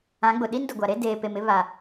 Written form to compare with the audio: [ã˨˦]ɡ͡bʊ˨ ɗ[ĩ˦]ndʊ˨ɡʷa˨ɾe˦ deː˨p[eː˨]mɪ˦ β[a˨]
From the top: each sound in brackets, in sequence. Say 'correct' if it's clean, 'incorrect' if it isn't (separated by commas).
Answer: correct, incorrect, incorrect, correct